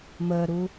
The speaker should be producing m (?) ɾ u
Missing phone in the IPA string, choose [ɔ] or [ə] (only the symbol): ə